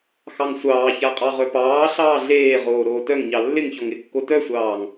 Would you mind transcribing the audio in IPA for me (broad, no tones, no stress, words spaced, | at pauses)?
xɑŋsʷɑːça qʼɑʁœpɑːɬɑː ɮeːʁoː ɾoːtœŋɲɑ lːɪŋçɔŋ ɪkːo tœsʷɑːŋ